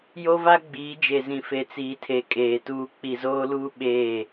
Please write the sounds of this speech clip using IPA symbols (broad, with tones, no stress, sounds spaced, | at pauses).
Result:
j o˦ v a˦ ɡ͡b iː˨˦ d͡ʒ e˨ z ĩ˨ f e˨ t͡s iː˨ tʰ e˨ kʼ eː˨ t uː˦ k͡p i˨ z oː˦ l uː˦ ɓ eː˦˨